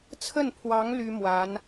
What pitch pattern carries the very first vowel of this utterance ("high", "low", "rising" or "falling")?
falling